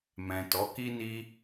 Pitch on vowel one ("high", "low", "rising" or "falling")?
low